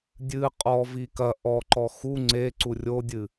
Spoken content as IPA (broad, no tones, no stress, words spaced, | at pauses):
dʲɨ qʼɔ vikɐ ʔɔǃɔ xu ŋ͡ǀe ǀurʲodʲɨ